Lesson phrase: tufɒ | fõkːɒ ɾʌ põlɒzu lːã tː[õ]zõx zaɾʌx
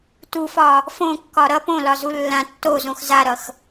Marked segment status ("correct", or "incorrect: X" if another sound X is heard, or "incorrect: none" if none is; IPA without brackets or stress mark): incorrect: o